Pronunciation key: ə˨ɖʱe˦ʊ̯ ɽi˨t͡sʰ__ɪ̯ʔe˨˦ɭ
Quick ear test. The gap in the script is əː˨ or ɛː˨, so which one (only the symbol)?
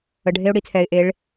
ɛː˨